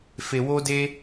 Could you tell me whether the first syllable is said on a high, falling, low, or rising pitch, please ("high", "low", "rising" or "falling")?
low